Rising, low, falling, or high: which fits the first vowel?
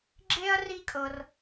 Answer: high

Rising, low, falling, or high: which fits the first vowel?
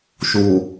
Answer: low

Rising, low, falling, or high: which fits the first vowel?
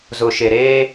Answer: low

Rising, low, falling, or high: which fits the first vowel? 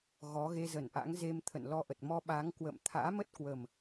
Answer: rising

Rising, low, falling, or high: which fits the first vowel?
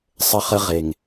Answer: high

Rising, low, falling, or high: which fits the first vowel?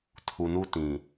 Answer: low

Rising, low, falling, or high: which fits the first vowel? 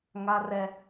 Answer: high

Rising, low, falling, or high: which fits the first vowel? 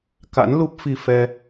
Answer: rising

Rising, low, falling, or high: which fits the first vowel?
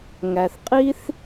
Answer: low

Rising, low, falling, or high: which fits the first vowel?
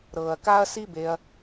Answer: low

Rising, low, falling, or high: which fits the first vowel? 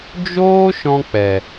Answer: high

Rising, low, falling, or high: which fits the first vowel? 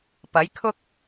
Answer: rising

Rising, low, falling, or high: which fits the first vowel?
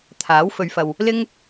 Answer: rising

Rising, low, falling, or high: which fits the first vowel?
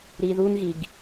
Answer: low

